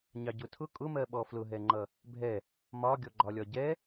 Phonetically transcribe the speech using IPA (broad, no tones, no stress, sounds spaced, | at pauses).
ɲ ɑ ɟ ʊ tʰ ʊ kʼ ʊ m ɜ ɓ ɔ f l ʊ ɦ ɛ ŋ͡ǃ ʌ | bʱ ɛ | m ɒ ɡʲ ɔ ɡ͡ǃ ɒ lʲ ɒ ɟ ɛ